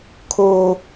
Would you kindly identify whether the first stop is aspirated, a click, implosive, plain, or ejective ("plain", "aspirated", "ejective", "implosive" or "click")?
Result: aspirated